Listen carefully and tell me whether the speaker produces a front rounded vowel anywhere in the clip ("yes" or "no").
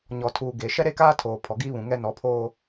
no